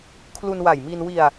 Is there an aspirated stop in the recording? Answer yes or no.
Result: yes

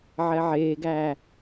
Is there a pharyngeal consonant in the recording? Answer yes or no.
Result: yes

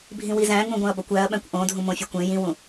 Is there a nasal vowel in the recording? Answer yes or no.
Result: yes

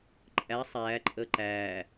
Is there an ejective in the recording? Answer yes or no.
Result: yes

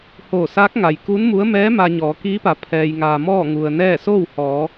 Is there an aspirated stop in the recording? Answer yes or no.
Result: yes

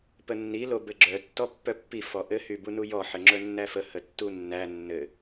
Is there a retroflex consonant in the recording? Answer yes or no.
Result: no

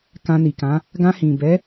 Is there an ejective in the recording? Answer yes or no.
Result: no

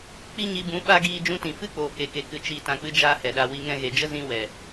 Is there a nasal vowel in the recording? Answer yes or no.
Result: yes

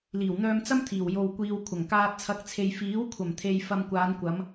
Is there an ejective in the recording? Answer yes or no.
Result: no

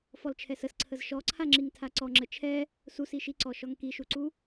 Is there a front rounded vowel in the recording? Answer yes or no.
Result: no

